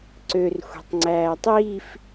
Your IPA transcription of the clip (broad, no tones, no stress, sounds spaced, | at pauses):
ǀ ø r xʷ i̤ tˤ ŋ͡ǀ æː tˤ i f